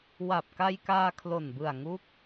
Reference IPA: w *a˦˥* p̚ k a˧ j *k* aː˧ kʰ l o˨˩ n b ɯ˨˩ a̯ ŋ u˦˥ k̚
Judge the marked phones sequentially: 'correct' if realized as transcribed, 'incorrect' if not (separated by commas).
incorrect, correct